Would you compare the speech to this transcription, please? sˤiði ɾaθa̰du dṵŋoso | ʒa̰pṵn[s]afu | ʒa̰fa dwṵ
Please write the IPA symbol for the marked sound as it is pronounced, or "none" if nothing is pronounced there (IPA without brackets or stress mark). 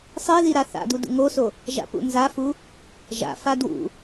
z